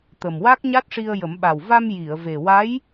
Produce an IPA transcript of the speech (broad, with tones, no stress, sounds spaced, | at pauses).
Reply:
t̪ ə˨˩ m w a˦˥ k̚ ɲ a˦˥ t̚ ʂ i˧ ə̯ j ə˨˩˦ m ɓ a˨˩ w v a˧ m j i˨˩˨ ə̯ v e˨˩ w a˧˥ j